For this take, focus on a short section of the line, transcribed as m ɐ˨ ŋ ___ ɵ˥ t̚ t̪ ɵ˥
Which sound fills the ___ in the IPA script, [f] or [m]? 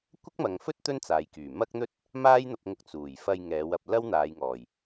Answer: f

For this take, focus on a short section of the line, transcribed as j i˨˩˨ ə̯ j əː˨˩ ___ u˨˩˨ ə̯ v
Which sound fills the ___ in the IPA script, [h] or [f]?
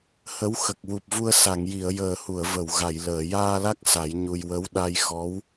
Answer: h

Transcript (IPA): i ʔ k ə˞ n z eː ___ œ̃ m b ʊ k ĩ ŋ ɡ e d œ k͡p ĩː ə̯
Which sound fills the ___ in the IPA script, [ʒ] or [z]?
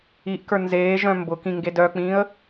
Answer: ʒ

